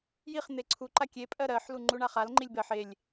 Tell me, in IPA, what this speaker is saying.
jiχ n̪eǀʰuǃa kʲe pʼɜɾɜħlu ŋ͡ǃuɳaχalŋ͡ǃilʲ bɜħ elʲ

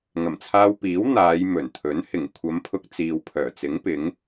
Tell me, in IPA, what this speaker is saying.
ŋɐ˨˩mt͡sʰaː˧wpiː˨˥w n̪aː˨˧jmɵ˨˩nt̪ʰɵ˨˥n hɪ˨˩ŋ kʷʰɐ˨˧mpʰʊ˧k̚ t͡siː˨wpʰœː˨˩t͡sɪ˨˥ŋ pɪ˨˥ŋ

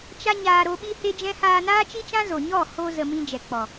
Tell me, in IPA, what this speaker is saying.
t͡ʃa˦ɲaː˧ ɾo˧ɓi˦he˦d͡ʒɛ̃˦ haː˧naː˦t͡ʃi˦t͡ʃã˦ zo˨ɲɔ˦˨ho˧ zə˧mĩ˦ d͡ʒɛ˨k͡pɔ˨

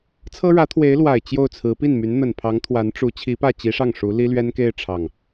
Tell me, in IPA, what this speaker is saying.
t͡sʰɤ˥ɻä˧˥t̪ʰwe˧˥ɪ̯ lwa˨˩ɪ̯ t͡ɕjo˥˩ʊ̯t͡sʰɹ̩˧˥ pi˥˩nmy˧˥n n̪ə˨˩n pʰɑ˧˥ŋt̪ʰwa˧˥nʈ͡ʂu˧˥ t͡ɕʰi˧˥pä˥˩t͡ɕi˧˥ʂɑ˥˩ŋ ʂu˧˥ li˥lɥɛ˥nke˥˧ɪ̯ ʈ͡ʂʰɑ˥˩ŋ

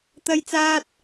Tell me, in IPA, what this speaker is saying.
t̪ɐ˥jt͡saː˥t̚

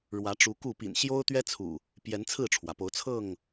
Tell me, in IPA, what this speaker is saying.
ɻwä˨˦ʈ͡ʂu˨˦ku˥˨ pḭ˨˩nɕjo˦ʊ̯t̪ɥɛ˦t͡sʰṵ˨˩ | pjɛ˨˦nt͡sʰɹ̩˥˨ʈ͡ʂʰwä˩po˨˦ʊ̯ t͡sʰɤ˥˨ŋ

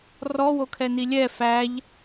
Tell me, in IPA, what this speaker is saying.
rɔwokʰɛni lʲɛ fæʎ

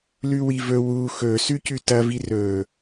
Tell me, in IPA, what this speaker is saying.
lʉwivɵ wu xɵsʉ cʉtɐ virɵ

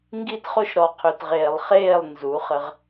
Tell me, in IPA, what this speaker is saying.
ŋɡi˦tχo˦ʃɾɔ˨ qʰø˨tʁeː˨lˠχeː˦˨lˠ nzu˨˦χə˦ʁ

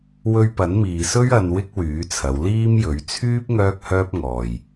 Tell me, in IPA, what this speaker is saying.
wɵ˧ɥpɐ˨˥nmiː˨sɵ˥ɥ ɐ˧n wɪ˥k̚wyː˨˥t͡sʰɐ˨˧w liː˥mjɵ˨˥ɥ t͡sʰyː˥p̚ ŋœː˥k̚hœː˥p̚ŋɔː˨j

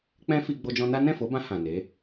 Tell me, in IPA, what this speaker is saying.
k͡pɛ̃˦fi˧ ɡ͡bo˧d͡ʒɔ̃˧na˦ nɛ̃˦˨fo˨˦bã˧ hã˨ne˨˦

